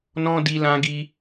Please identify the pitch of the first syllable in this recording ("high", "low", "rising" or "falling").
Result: high